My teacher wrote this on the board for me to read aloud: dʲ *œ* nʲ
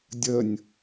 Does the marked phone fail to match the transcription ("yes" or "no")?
yes